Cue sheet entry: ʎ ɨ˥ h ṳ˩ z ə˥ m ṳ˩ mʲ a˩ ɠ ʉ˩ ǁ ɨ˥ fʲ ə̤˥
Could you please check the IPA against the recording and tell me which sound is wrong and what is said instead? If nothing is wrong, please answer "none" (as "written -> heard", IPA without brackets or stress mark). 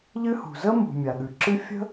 none